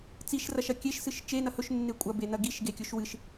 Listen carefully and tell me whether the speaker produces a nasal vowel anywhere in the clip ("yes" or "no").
no